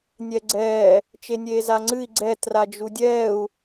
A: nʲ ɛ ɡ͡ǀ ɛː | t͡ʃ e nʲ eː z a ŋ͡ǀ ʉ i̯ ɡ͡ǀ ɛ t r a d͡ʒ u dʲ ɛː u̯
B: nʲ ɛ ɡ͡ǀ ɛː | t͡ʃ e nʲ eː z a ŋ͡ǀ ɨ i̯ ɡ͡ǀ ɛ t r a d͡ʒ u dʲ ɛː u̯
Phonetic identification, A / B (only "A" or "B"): B